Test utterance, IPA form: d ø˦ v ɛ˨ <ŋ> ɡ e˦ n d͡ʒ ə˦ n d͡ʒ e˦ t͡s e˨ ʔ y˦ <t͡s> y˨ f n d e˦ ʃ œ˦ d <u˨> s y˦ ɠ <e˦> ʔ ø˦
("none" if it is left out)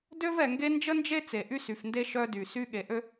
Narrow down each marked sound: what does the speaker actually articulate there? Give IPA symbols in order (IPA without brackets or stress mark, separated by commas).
ŋ, s, y˨, e˨